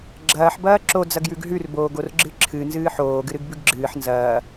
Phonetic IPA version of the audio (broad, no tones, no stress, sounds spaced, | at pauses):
ɡ͡ǁ ɐː ħ b ɐː ǁ o d͡z ɐ ɡ j ʉ ɡ ɦ ʉ r b oː ɡ o r ɡ͡ǁ ɨ ǁʰ ɨ n z ɨː ħ oː ɡ ɨ ɾ ɨ ɡ b ʉ ɡ ɡ͡ǁ ɨː ħ n z ɐː